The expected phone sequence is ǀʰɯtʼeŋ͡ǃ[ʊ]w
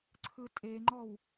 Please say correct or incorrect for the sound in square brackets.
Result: incorrect: ɔ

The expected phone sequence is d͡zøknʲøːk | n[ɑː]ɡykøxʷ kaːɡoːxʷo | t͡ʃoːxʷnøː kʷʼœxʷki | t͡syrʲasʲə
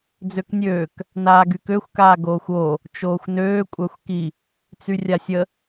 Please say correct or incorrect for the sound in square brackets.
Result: incorrect: aː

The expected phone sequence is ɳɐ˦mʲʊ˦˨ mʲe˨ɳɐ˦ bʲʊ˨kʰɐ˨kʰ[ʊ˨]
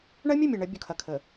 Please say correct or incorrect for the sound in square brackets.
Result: incorrect: ə˨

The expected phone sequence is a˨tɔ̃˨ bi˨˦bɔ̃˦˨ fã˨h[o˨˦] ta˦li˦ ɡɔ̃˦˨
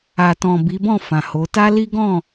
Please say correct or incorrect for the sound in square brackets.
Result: correct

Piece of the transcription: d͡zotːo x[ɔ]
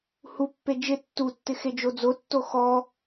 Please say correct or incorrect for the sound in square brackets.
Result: correct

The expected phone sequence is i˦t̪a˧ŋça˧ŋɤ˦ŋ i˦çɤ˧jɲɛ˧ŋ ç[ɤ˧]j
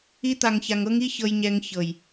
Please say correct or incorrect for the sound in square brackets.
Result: incorrect: ɤ˨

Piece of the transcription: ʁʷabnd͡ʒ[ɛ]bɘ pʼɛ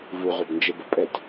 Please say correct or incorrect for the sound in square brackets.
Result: incorrect: e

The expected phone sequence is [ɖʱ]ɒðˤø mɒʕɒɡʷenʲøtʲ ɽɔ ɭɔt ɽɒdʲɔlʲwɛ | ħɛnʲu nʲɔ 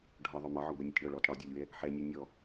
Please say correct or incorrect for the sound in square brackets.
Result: correct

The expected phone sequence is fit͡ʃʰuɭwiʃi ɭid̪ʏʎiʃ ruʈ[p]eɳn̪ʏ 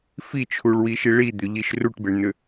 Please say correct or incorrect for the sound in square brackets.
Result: incorrect: b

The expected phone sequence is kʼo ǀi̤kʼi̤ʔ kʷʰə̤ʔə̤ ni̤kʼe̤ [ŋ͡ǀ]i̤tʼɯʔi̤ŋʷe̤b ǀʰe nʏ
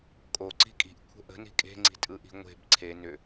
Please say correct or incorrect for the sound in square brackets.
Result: correct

